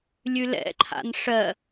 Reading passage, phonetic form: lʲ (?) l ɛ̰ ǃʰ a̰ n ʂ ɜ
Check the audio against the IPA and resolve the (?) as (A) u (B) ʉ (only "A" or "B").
B